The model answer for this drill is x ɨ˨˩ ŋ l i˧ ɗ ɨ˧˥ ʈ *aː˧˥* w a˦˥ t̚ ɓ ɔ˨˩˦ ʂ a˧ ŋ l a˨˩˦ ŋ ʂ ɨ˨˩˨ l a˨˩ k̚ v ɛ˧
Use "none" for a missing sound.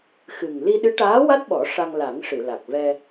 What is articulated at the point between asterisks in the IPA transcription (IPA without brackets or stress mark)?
aː˧˥